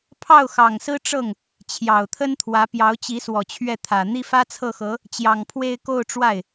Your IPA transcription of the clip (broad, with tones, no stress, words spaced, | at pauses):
pʰɑ˥˩ʊ̯xɑ˨˩ŋsɹ̩˥ ʈ͡ʂɤ˥˩ŋ | t͡ɕʰjɑ˨˩ʊ̯t̪ʰə˥nt̪ʰwä˧˥ pjɑ˧˥ʊ̯t͡ɕi˧˥swɔ˨˩ t͡ɕʰɥɛ˥˩t̪ʰä˨˩ n̪i˥˩fä˥t͡sʰɤ˥˩xɤ˧˥ | t͡ɕjɑ˨˩ŋpʰwe˥˧ɪ̯ ko˥˧ʊ̯ʈ͡ʂwa˥˩ɪ̯